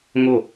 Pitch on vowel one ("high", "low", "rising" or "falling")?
falling